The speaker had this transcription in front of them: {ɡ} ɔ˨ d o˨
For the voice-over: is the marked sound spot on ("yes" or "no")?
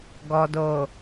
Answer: yes